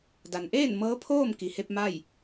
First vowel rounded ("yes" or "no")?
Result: no